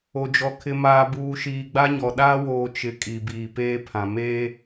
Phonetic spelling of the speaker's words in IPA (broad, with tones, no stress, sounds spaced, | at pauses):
o˨ d͡ʒ ɔ˨ kʰ ɪ˨ m aː˨ b uː˨ ʃ iː˨ ɡ͡b a˦ ɲ ɔ˨ ɗ aː˦ w oː˨ t͡ʃ ɪ˨ kʼ i˨ b iː˨ p eː˦ pʰ ã˨ m e˦